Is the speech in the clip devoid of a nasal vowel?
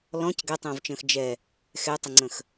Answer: no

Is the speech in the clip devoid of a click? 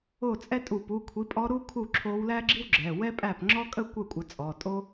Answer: no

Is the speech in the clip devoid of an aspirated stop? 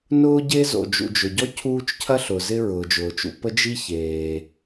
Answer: no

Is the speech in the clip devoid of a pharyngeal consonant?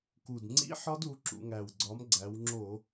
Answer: no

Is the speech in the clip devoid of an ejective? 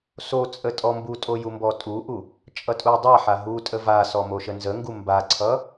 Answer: no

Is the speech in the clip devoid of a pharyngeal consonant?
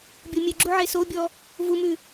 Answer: no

